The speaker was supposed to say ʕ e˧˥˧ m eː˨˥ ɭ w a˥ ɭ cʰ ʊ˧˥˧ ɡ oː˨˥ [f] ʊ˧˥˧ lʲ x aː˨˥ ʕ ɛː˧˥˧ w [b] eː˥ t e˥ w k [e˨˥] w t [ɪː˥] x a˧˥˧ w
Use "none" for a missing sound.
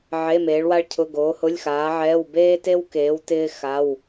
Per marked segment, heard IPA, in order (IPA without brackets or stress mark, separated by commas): h, b, eː˨˥, ɪː˥